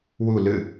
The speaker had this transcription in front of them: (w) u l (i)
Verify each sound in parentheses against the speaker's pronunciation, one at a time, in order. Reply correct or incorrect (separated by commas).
correct, incorrect